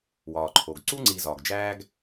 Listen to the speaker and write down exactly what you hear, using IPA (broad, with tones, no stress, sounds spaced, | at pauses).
w ɒː˩ ǃʰ o˩ ɡ ǀ u˥ ŋ͡ǀ i˨ z ɒː˩ ɡ d͡ʒ æː˦ ɡ